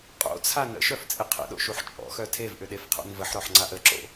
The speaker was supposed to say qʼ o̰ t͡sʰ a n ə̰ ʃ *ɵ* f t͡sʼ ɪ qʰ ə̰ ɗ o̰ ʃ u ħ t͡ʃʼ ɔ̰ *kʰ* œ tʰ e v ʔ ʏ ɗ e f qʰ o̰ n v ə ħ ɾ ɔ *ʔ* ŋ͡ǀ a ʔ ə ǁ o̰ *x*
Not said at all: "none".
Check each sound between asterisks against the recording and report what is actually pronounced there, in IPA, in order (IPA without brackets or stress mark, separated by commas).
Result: œ, x, ħ, none